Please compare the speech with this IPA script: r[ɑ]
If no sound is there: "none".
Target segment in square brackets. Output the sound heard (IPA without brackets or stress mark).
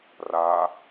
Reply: a